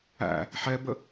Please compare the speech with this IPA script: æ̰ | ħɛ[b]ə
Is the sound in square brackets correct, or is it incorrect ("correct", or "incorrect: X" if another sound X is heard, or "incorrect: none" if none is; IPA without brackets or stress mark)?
correct